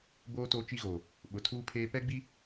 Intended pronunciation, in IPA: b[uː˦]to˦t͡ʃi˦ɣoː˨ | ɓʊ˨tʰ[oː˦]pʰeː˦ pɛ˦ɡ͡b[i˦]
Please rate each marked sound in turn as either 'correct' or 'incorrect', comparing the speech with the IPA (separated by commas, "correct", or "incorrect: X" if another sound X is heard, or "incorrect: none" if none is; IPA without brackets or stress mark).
incorrect: oː˦, incorrect: uː˦, correct